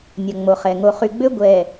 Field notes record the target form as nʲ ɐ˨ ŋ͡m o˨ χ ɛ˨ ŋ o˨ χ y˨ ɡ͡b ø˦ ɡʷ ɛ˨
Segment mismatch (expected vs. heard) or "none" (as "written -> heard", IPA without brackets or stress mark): none